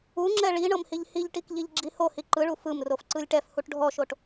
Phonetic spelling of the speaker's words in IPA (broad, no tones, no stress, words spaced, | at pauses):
uŋ͡ǁɛ ɭi ɳɤmhiʎhiʎʈik ʎiʎɡ͡ǁihohi ǃɯɭu fɯm rofǀɯlʲʈɛfhuʈ ɖʱɔʃoʈ